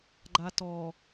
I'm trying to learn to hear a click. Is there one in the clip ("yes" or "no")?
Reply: yes